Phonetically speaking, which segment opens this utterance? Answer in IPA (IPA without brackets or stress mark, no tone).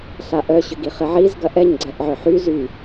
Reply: ɬ